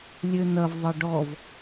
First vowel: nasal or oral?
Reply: oral